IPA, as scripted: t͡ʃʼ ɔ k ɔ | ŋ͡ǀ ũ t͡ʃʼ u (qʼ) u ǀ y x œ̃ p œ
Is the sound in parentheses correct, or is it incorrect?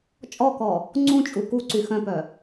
incorrect